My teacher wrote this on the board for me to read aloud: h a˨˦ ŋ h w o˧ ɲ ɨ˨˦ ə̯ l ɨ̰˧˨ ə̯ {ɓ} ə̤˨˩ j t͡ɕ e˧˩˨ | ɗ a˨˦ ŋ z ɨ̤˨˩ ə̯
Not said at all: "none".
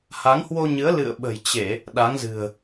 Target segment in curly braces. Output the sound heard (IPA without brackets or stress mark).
ɓ